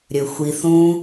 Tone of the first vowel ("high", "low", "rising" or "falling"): low